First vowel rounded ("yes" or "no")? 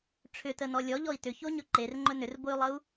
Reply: yes